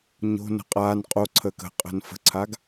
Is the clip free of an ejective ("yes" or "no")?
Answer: no